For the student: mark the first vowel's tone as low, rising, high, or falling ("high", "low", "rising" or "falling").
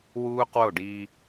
high